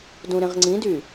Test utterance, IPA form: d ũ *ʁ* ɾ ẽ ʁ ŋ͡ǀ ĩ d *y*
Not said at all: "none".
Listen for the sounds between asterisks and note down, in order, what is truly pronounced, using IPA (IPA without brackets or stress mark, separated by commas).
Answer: none, y